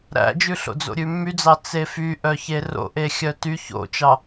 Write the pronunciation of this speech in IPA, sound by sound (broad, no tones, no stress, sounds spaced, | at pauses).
ɾ æ̰ d͡ʒ ʉ ɬ o̰ d͡z o̰ ɾʲ ʉ mː y d͡z ɑ t͡s e f y ʔ œ ç e r o̰ ʔ e xʲ œ t y ç o̰ t͡ʃ ɑ